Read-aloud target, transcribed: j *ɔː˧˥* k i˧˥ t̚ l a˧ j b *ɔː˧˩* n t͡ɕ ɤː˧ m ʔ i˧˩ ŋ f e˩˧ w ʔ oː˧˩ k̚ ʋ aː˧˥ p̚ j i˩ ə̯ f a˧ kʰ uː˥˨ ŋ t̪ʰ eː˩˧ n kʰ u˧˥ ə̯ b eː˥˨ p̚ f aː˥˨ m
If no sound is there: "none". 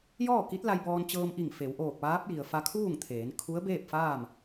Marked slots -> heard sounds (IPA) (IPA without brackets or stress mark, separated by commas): ɔː˥˨, ɔː˧